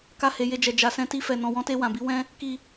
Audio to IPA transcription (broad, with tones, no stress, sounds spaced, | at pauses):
k a˧ h e˨ j e˧ d͡ʒ ɛ˨ d͡ʒ a˨ s ɛ̃˧ t i˧ f ɛ˨ n ɔ̃˨ w ɔ̃˧ t e˧ w ã˨ b i˨˦ w ɛ̃˦ | k i˧